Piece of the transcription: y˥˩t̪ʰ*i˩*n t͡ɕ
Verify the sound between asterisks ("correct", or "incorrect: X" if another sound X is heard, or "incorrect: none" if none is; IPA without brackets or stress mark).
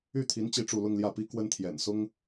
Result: incorrect: i˧˥